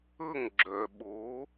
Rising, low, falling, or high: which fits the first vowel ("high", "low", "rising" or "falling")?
falling